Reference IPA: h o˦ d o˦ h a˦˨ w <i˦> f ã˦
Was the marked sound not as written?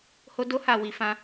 yes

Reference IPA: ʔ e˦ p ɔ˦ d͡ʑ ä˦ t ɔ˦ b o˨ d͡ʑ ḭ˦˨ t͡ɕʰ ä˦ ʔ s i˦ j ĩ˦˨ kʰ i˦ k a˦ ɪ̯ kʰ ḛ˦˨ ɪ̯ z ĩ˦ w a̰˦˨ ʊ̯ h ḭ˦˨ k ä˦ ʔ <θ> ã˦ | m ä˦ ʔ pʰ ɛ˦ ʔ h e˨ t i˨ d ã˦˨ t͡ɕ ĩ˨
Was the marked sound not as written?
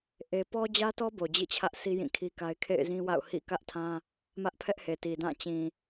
yes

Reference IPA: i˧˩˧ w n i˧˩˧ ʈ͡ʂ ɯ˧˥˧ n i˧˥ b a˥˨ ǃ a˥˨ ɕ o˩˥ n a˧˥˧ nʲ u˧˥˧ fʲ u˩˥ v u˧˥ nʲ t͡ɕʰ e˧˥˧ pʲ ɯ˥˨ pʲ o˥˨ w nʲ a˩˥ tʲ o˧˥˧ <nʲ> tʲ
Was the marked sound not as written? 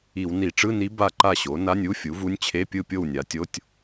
yes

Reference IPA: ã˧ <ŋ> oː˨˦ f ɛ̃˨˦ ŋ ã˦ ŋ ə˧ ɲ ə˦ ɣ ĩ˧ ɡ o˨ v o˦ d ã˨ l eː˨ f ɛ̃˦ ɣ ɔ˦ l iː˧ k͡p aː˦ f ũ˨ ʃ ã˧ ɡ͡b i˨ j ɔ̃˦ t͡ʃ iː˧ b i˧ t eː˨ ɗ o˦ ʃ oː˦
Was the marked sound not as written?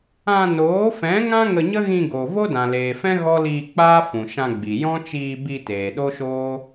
yes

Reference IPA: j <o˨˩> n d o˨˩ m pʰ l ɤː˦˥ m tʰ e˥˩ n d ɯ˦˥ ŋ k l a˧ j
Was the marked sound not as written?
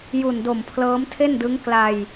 yes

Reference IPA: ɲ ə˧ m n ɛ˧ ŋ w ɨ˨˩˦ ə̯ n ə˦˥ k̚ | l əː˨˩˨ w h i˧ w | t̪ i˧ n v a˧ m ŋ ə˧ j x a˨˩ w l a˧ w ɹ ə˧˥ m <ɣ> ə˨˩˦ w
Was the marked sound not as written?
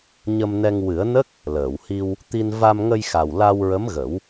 no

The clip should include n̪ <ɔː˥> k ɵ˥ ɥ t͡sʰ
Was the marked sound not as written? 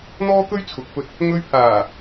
no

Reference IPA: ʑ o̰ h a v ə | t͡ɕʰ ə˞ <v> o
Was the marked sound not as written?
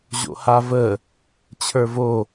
no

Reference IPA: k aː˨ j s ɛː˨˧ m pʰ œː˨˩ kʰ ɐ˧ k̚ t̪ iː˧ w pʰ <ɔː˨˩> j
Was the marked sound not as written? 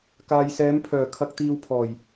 no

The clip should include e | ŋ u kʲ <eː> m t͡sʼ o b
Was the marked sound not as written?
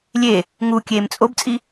no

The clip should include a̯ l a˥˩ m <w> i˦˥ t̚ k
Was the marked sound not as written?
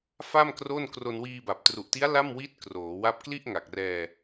no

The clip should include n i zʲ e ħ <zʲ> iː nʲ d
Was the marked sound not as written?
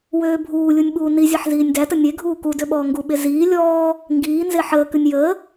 yes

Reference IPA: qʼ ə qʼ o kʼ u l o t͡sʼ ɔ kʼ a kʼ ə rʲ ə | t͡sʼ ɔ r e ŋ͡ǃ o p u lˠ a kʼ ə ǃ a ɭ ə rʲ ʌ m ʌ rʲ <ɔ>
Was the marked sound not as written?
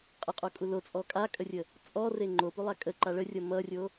yes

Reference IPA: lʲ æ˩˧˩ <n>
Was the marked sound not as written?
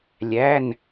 no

